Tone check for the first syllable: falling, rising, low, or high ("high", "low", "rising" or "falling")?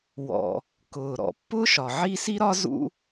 low